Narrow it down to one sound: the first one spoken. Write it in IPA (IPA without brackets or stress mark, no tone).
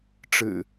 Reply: ʈ͡ʂ